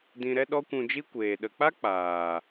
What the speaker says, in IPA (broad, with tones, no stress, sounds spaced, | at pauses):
d ĩ˧ ɾ ɛ˦ ɗ ɔ˦ kʷ ũ˧ d͡ʒ i˦ kʷ eː˨ ɗ ə˨ k͡p a˦ k͡p aː˨